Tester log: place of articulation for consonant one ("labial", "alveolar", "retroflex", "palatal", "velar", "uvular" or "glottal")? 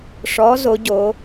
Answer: retroflex